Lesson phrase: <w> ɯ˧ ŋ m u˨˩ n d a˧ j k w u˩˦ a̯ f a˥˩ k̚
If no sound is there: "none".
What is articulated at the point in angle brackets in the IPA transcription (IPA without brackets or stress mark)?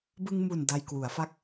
b